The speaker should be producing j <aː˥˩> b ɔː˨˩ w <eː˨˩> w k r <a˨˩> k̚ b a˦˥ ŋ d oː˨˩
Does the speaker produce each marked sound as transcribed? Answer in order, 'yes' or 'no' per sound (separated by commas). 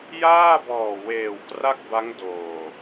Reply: yes, yes, no